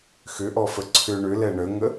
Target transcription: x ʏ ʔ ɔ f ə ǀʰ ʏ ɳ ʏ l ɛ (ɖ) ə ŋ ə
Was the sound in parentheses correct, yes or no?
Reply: no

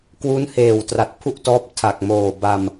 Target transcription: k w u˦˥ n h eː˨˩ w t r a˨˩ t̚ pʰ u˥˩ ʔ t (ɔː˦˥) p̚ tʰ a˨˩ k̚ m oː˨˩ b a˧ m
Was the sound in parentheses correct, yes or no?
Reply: yes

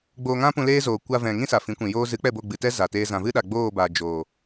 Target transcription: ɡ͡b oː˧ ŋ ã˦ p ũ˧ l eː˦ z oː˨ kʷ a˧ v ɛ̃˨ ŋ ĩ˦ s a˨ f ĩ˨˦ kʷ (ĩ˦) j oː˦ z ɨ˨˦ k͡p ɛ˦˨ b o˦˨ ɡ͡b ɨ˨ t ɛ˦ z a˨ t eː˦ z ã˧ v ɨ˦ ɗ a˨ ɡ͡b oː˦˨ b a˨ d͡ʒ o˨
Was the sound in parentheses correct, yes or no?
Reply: no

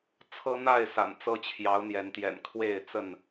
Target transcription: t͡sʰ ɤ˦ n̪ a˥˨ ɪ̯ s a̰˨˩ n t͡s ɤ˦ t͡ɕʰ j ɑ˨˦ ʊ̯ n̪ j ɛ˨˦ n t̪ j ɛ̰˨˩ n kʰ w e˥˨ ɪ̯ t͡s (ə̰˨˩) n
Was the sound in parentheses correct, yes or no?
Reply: no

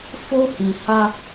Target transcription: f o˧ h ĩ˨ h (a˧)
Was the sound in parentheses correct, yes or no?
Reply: yes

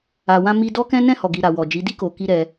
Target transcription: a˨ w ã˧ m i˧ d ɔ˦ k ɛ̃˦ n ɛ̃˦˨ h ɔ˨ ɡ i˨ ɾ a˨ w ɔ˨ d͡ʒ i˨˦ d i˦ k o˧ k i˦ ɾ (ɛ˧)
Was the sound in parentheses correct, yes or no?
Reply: yes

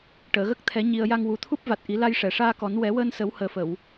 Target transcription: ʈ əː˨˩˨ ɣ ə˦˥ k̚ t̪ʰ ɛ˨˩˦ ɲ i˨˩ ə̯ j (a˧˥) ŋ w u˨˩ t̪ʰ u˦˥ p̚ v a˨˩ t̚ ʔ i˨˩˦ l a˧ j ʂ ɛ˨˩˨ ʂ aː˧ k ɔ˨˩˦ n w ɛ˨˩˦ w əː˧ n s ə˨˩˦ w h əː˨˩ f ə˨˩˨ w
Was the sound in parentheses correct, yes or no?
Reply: no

